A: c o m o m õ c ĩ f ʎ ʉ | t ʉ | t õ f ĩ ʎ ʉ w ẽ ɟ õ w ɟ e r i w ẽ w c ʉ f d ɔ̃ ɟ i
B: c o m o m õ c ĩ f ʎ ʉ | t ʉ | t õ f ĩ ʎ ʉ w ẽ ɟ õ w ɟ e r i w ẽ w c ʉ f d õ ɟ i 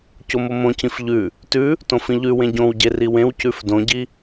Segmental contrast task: B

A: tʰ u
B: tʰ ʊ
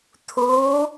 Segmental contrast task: A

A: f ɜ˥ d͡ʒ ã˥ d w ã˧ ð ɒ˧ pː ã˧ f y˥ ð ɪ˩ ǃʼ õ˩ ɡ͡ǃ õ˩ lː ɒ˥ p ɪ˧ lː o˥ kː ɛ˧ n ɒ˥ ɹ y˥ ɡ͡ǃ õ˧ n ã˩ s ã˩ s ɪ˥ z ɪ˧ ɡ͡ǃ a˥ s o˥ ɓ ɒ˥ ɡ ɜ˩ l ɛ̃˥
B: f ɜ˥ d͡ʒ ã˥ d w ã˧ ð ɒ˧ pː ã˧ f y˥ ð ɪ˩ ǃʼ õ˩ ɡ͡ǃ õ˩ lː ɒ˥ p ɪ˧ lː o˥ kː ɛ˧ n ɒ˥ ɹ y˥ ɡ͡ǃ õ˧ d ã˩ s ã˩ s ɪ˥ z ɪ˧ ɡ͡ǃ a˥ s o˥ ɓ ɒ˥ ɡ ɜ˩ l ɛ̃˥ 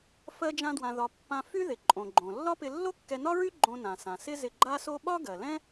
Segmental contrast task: A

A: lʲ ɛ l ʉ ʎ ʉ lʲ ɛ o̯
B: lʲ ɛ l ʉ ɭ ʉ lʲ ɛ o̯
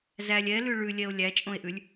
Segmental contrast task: B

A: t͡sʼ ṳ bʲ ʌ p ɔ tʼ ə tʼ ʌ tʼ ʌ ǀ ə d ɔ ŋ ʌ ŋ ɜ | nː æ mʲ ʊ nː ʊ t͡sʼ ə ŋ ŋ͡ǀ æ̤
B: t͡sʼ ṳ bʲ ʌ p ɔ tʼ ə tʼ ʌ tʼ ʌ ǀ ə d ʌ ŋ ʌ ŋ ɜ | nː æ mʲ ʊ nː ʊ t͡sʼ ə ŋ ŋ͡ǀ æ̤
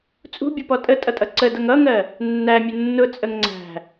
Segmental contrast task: B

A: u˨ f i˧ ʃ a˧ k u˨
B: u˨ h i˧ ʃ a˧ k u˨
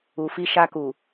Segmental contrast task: A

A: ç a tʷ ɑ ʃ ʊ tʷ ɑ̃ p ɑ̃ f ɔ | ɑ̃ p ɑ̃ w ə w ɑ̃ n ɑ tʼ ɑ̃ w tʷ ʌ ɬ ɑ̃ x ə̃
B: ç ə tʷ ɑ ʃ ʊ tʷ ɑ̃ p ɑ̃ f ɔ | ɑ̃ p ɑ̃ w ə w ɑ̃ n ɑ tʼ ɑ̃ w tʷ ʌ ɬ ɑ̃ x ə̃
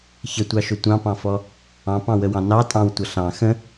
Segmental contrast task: B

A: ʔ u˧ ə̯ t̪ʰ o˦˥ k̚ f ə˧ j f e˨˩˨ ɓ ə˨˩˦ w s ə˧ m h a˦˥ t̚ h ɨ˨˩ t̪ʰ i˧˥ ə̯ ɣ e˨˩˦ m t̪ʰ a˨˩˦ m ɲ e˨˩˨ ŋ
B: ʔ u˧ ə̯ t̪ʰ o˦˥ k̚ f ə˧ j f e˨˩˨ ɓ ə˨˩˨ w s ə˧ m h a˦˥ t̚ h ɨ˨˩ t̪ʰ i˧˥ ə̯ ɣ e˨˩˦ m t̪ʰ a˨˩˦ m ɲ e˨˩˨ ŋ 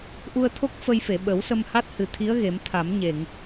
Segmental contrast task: A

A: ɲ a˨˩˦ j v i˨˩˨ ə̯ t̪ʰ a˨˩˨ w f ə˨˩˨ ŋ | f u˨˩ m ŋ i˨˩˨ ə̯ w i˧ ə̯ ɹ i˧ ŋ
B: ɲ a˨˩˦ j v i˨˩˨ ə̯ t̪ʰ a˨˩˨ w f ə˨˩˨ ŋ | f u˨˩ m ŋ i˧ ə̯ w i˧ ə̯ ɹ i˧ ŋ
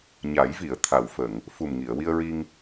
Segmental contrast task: A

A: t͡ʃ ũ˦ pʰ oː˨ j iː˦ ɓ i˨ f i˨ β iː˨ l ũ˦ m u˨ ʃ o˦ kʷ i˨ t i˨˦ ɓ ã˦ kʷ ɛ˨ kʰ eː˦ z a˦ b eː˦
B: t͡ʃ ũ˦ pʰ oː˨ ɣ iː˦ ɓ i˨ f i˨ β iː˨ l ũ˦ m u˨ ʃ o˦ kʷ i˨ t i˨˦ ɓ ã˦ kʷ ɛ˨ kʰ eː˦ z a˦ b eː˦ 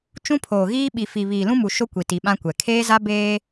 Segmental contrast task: B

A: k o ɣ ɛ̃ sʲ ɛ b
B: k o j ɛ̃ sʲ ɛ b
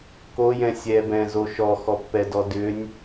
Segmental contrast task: B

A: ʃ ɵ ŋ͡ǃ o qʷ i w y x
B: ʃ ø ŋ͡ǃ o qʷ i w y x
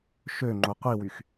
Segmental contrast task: B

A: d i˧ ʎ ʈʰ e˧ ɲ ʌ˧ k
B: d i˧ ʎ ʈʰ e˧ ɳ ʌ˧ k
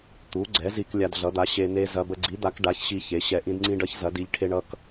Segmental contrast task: B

